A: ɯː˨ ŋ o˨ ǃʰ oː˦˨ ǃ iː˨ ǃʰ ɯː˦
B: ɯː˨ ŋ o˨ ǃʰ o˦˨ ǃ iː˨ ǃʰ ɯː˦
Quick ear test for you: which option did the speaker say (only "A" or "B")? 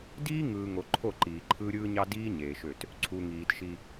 B